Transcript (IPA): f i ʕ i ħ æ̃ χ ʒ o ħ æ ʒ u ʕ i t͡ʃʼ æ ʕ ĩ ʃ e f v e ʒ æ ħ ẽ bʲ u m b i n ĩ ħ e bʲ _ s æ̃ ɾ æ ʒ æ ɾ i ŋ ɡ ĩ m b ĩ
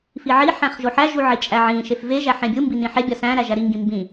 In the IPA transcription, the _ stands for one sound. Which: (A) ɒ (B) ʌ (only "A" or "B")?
A